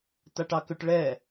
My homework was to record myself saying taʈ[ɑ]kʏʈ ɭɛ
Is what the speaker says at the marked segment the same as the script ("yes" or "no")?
yes